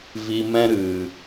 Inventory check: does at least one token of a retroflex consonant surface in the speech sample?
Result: no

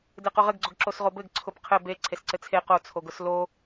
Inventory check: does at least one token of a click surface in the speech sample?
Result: yes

